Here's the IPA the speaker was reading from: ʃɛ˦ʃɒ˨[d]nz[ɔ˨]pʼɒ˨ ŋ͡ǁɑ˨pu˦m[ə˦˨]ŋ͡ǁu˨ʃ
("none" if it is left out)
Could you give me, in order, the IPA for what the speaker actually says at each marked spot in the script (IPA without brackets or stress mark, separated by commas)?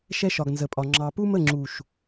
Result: ɡ, ə˨, ə˦˨